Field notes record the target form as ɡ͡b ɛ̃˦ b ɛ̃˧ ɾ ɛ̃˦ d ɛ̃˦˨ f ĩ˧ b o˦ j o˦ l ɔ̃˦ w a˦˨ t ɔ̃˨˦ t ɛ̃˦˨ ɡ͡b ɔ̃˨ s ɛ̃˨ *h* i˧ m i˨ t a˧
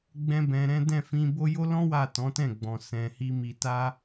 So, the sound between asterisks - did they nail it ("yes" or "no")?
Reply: yes